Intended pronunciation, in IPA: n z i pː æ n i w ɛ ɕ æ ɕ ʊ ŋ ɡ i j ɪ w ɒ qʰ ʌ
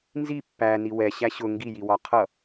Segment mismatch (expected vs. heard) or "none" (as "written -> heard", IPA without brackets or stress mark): ɪ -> i